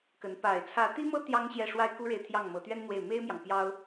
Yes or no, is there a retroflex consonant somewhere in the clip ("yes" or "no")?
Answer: yes